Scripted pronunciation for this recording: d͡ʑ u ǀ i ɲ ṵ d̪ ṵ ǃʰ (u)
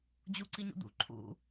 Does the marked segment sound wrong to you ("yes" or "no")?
yes